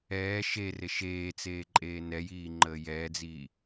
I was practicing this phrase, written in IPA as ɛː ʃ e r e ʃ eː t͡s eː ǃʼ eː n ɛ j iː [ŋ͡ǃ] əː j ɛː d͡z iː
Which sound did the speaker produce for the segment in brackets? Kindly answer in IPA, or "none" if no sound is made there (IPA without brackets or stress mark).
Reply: ŋ͡ǃ